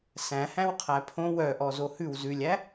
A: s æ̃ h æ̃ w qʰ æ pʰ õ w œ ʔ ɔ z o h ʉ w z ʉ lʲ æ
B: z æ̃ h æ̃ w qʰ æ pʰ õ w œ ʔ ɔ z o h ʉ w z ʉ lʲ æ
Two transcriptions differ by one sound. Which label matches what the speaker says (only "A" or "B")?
A